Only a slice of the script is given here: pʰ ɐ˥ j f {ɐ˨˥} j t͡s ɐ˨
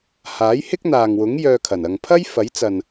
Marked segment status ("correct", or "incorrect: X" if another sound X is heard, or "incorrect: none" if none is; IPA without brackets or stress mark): correct